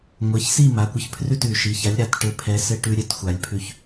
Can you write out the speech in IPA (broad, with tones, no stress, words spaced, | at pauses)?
ŋʷɛ˩˧˩çsi˥˩ ma˩˧˩kʷɘ˧ç pʰrʉ˥˩tʉ˨˩˦ ʃi˩˧˩ça˨˥lʲɾa˩˧˩t ʈɘ˧˩pʰɛ˨˥ sɘ˧ ʈʉ˧ ɾʲɘ˨˩˦txʷa˨˩˦lʲpʰʉ˧˩ç